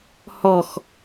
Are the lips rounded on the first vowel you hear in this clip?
yes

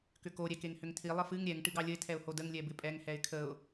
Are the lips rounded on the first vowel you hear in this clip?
yes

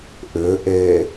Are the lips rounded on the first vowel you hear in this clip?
yes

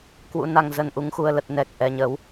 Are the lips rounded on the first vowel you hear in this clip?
yes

